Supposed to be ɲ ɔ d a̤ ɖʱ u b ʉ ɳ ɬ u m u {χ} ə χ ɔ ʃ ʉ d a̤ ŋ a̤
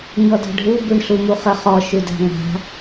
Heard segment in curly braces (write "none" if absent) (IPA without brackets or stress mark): χ